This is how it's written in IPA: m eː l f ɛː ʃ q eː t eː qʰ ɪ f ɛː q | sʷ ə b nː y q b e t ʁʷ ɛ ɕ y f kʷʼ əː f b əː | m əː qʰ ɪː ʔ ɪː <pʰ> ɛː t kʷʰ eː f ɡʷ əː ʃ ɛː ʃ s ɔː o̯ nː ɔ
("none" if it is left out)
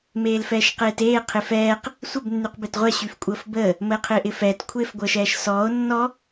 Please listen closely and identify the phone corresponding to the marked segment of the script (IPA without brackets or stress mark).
f